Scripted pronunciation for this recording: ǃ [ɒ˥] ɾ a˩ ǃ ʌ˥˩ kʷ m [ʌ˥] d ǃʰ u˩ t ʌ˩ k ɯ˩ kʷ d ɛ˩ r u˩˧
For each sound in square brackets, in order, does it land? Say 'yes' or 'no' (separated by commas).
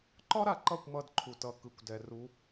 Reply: yes, no